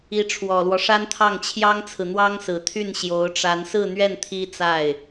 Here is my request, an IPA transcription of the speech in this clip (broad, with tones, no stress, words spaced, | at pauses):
i˧˥ʈ͡ʂʰwɔ˨˩lwɔ˦ʂa˥n t̪ʰɑ˥˩ŋt͡ɕʰjɑ˥ŋt͡sʰɹ̩˨ n̪wɑ˥ŋsɹ̩˨˩t̪ʰy˥˩n ɕjo˧˥ʊ̯ʈ͡ʂa˧˥n sɹ̩˥˧n̪ɥɛ˥˩n t̪ʰi˥t͡sa˥˩ɪ̯